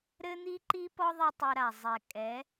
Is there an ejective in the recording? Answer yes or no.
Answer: yes